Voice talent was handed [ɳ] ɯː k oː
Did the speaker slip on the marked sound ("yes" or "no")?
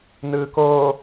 yes